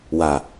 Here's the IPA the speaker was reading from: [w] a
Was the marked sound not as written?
no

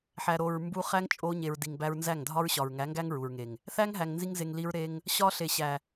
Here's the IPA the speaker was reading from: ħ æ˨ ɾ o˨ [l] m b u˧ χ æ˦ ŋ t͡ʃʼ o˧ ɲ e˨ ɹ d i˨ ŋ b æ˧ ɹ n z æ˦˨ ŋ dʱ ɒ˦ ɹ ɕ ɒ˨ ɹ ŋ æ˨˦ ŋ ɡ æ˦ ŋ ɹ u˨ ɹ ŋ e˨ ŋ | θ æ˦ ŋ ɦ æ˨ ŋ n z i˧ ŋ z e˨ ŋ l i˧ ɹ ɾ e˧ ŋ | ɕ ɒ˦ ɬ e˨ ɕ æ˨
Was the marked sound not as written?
yes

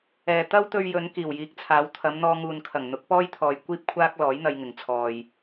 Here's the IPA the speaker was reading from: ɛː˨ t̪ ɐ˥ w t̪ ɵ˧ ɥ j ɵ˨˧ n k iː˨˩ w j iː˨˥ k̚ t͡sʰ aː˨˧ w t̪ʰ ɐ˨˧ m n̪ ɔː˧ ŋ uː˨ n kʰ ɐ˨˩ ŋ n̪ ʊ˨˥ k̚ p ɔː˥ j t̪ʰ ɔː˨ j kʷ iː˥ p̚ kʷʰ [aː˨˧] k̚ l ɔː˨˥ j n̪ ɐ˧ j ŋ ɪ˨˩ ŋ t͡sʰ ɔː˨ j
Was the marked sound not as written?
yes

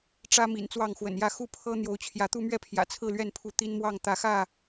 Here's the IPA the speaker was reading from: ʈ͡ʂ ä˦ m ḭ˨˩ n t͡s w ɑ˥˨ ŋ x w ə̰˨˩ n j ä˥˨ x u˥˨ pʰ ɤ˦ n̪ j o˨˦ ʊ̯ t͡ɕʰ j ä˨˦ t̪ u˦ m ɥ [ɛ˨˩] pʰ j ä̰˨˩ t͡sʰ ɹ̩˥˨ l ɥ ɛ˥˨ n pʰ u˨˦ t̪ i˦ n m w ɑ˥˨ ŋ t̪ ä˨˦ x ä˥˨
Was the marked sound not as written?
yes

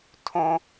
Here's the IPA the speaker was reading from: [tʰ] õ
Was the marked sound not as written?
no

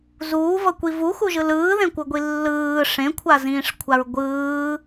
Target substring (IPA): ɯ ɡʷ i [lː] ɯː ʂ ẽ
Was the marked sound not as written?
no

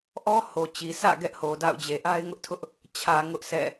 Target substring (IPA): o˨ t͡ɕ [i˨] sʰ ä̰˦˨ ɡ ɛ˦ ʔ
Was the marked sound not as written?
no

